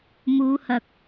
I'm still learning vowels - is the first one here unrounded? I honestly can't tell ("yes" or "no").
no